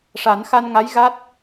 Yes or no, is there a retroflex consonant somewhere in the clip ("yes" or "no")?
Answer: yes